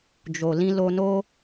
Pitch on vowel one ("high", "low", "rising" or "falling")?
low